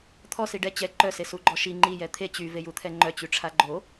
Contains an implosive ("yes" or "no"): no